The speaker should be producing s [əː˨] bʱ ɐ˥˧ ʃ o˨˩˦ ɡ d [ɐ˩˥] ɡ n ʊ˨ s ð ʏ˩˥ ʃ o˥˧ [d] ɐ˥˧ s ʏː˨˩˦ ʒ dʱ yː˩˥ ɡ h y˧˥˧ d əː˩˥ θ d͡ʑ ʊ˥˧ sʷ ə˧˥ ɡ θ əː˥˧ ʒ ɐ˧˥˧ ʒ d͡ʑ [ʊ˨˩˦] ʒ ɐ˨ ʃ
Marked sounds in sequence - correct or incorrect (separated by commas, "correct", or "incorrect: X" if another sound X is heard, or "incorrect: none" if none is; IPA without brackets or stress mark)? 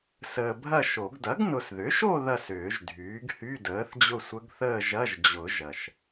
correct, correct, incorrect: ð, correct